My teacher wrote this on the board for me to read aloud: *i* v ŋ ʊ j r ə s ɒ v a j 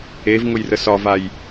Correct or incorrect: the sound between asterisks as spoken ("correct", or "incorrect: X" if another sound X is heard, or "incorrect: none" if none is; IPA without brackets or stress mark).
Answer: incorrect: e